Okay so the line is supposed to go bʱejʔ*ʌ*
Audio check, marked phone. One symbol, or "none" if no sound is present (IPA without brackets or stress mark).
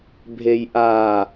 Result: a